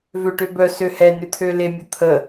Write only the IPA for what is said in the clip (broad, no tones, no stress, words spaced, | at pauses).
vøʈøbœ søhɛ nʏt̪ʰølemʲə t̪ʰə